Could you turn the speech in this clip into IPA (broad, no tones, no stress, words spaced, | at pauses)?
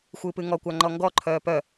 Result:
xʷɨːpɨŋɔkʷa ŋ͡ǃɔŋɡɔǃʰœː pœ